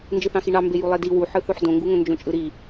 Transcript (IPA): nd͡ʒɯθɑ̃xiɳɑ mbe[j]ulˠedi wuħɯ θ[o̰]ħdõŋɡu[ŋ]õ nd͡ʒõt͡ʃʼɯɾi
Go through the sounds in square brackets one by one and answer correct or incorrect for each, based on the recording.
correct, incorrect, correct

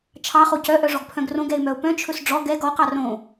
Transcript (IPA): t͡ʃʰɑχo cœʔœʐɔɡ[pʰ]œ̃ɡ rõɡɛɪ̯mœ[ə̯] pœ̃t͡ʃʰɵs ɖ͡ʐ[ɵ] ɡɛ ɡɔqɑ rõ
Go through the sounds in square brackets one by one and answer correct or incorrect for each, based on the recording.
correct, incorrect, incorrect

